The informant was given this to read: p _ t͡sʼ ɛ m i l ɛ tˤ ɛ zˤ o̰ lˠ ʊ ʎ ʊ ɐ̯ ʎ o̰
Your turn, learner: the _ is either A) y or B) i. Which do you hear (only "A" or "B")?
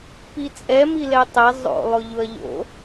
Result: B